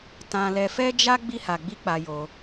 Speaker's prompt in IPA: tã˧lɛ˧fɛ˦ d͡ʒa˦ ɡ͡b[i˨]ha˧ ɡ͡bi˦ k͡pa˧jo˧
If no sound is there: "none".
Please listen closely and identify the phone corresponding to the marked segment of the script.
i˦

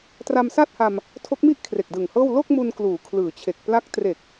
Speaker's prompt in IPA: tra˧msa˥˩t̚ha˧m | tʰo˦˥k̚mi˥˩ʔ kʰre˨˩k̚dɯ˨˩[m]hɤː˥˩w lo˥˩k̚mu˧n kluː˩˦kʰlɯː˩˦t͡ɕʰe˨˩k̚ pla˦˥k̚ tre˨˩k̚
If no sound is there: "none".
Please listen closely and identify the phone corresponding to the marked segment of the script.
ŋ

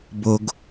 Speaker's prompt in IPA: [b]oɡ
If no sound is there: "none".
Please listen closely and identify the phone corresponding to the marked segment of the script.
b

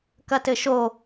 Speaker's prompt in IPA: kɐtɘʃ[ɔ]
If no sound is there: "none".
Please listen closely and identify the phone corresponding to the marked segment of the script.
o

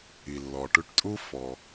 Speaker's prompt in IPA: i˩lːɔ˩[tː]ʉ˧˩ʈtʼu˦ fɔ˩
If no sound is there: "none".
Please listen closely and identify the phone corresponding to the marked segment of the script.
ʈ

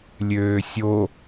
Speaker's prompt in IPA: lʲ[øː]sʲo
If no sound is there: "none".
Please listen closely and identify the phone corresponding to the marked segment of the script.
øː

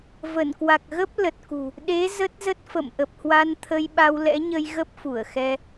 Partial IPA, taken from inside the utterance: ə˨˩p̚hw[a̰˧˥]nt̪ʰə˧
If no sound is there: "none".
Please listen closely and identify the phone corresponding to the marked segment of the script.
a˧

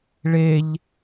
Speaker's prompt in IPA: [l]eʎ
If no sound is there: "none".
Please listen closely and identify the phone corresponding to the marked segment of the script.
ɭ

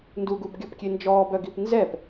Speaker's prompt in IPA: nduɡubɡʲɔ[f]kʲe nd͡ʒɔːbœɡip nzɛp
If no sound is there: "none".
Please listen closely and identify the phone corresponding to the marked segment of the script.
p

